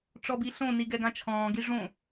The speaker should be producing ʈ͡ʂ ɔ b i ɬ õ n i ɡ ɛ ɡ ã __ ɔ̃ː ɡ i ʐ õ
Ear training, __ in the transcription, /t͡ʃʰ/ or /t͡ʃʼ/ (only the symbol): t͡ʃʰ